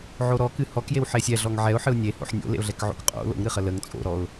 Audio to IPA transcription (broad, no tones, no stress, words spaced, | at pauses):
ʕoɾɔkɨ hɔkjew ħesʲɛɮɔŋ ʕɛʊ̯ ħɨʊ̯nʲeho̰ħ nʲo̰lḛʊ̯ɮɛk ʕo̰kqʼo̰ lo̰ŋ ɾɨχələŋ t͡sʼo̰ɾɔʊ̯